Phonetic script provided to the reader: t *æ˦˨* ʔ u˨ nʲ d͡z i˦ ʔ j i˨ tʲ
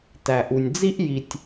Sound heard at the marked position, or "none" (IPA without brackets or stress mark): æ˨